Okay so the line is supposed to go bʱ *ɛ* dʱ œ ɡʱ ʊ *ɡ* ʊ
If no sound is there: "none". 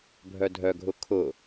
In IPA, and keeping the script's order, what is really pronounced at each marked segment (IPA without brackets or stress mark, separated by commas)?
œ, kʰ